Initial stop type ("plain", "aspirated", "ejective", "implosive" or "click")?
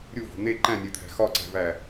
click